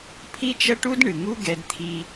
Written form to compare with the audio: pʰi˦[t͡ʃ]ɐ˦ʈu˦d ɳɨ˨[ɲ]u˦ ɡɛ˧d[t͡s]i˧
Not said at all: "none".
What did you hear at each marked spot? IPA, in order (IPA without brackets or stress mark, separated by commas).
t͡ʃ, ŋ, t̪ʰ